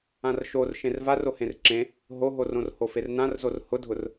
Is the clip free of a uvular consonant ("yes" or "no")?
yes